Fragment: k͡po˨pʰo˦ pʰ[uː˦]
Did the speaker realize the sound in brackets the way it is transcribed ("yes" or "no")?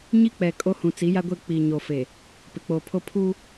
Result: yes